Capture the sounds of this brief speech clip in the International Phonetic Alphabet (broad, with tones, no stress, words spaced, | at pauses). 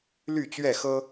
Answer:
ly˥˨t͡ɕɥɛ˥˨xɤ˦